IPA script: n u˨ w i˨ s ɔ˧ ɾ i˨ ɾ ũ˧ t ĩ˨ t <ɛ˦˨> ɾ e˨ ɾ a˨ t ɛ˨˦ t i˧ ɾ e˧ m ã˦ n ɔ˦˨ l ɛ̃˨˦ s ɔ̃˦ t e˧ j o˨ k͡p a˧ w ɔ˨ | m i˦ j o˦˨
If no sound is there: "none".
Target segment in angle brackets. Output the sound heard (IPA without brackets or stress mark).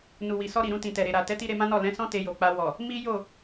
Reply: ɛ˨